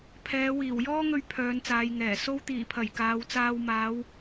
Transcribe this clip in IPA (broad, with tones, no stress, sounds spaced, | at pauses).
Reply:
pʰ ɛː˨˧ w iː˨˩ w j ɔː˥ ŋ ɵ˧ ɥ pʰ œː˨˧ n t͡s aː˨˧ j ŋ ɛː˨˩ s o˧ w t̪ iː˨˩ pʰ ɐ˨˩ j k aː˨˧ w t͡s aː˧ w m aː˨˥ w